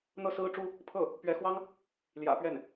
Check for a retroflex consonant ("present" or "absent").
present